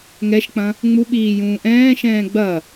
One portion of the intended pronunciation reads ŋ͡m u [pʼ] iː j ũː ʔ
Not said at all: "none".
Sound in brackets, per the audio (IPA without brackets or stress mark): ɓ